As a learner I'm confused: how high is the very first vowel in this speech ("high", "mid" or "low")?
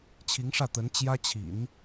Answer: high